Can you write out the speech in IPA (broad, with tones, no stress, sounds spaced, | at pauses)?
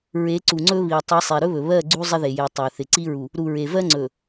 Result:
ɹ e˨˦ ǀ u˨ ŋ͡ǀ ɵ˦ β i˨ tˤ i˨˦ sˤ e˨ ɾ ɵ˦ β ɵ˨ β ɜ˦˨ ɡ͡ǀ u˦ zˤ ɪ˦ ð e˨ j e˨ tˤ ə˞˨ θ ɪ˨ ǀ i˦ ɹ u˨ | ɾ u˨ ɹ e˨ v ɜ˦ ŋ͡ǀ ɵ˨